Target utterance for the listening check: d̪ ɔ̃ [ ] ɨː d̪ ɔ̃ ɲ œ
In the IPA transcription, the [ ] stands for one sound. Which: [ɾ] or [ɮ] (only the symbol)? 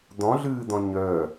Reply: ɮ